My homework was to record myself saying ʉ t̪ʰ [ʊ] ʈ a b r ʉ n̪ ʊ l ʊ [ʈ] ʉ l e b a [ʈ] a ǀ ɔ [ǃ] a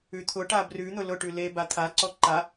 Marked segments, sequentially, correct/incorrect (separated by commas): correct, correct, incorrect, correct